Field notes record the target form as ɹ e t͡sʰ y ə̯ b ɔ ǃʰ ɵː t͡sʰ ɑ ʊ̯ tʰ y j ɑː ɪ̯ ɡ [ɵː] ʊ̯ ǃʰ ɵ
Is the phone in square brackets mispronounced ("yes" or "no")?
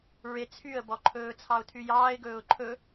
no